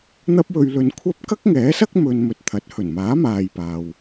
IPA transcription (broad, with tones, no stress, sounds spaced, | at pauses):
n̪ ɐ˥ p̚ w ɵ˧ ɥ l ɵ˧ n kʷʰ ɐ˥ p̚ k ɐ˥ k̚ ŋ ɛː˨˥ s ɐ˥ k̚ m ɵ˧ n m ɵ˧ t̚ t̪ʰ ɐ˨˥ t̚ h ɵ˨˩ n m aː˨˥ m aː˨ j p aː˨ w